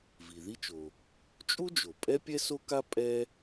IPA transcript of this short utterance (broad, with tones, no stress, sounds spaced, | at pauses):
v i˩ ð i˥ t͡ʃ o˩ | t͡ʃʼ u˥ d͡ʒ o˩ pʼ ɛ˥ pʲ ɛ˥ s o˥ k a˥ pʼ ɛ˥